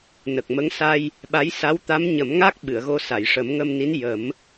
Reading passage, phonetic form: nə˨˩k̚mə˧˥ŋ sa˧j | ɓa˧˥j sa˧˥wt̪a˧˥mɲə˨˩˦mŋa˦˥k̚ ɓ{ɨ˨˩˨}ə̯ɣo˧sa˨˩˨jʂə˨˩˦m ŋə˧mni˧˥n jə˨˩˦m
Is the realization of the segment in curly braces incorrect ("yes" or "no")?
no